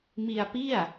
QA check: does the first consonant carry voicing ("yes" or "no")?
yes